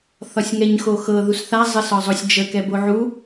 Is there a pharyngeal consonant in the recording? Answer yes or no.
yes